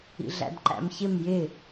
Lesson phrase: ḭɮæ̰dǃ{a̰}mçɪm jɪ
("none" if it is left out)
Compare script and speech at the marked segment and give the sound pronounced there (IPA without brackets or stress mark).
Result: æ̰